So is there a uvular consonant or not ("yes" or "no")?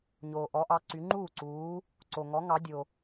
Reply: no